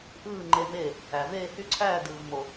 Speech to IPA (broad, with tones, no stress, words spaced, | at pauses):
ʔɯː˥˨ŋ͡ǃe˦me˥˨ | æ˨veː˥˨hy˥˨ǀʰæː˥˨ dɯː˨vmo˨